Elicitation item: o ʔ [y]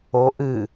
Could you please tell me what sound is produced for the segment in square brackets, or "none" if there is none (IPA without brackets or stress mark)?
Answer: ɨ